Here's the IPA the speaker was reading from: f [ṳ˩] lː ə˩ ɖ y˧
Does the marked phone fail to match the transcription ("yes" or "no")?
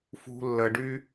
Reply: no